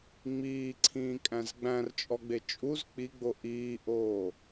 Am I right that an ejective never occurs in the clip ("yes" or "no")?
no